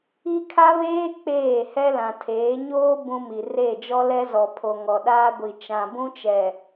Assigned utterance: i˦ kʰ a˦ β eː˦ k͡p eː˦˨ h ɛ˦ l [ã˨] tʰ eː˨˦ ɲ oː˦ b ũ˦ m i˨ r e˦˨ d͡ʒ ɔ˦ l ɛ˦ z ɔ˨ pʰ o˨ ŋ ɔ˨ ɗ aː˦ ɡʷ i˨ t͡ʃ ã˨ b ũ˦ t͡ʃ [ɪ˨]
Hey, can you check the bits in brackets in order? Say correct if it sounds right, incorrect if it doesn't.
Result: correct, incorrect

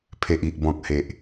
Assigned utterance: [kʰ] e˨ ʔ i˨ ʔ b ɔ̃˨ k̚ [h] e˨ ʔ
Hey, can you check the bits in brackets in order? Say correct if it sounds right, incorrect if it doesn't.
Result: incorrect, correct

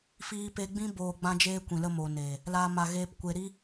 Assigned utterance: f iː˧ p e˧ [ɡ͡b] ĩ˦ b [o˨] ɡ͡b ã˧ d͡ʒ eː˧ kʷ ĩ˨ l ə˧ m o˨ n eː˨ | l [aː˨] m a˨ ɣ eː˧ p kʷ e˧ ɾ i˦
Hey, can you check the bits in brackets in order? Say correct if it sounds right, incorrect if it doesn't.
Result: correct, incorrect, correct

